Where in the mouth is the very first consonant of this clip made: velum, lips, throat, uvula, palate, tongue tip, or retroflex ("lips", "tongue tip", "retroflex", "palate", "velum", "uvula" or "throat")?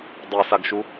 tongue tip